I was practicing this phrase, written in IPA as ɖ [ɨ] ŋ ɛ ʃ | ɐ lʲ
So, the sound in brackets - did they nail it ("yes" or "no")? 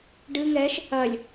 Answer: yes